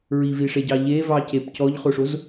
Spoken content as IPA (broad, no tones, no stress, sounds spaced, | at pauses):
ɹ i v i ʂ e ɟ ɑ ʎ e v ɑ c e p c ɔ ʎ χ o ʂ o z